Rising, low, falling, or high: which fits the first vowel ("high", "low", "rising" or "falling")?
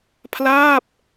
falling